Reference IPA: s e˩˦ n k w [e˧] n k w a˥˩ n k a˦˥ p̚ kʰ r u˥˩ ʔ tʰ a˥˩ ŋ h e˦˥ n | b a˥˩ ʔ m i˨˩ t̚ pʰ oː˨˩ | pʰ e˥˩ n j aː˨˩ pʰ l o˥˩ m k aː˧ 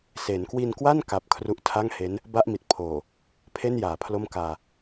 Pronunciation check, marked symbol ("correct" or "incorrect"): incorrect